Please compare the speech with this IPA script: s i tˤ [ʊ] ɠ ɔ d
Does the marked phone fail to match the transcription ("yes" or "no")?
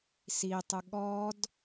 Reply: no